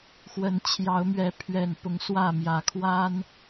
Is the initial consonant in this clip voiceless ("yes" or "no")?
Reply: yes